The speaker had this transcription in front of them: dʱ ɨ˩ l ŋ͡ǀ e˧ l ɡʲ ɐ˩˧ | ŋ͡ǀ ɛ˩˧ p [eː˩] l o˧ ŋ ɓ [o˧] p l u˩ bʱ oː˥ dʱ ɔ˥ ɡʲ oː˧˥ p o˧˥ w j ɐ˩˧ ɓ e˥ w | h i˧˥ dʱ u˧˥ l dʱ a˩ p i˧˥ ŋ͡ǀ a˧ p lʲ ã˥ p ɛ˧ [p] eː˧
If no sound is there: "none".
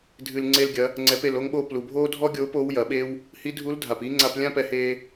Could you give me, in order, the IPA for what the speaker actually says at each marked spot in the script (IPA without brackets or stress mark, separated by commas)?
e˩, o˧, h